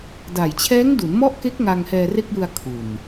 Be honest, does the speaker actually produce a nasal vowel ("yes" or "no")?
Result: no